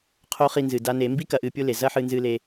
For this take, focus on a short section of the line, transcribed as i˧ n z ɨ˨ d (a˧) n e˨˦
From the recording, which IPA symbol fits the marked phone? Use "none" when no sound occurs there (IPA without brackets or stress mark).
a˧